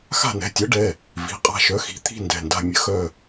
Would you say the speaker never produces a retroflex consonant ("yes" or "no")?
no